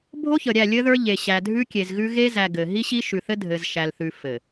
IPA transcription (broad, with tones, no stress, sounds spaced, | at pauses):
bʱ o˦ ç ə˨ ɾʲ æ˦˨ lʲ ɘ˦ ð ə˞˦ ʎ e˨ ɕ æ˨ dʱ ʉ˦ kʲ e˨ z ɣ ʉ˦ ɣ e˦ z æ˨ ɡ ɘ˨ ɦ i˦ ɕ i˦ ʃ ʉ˨ θ ɘ˦ dʱ ɘ˨ z ʃ æ˨ l θ ʉ˨ f ɘ˨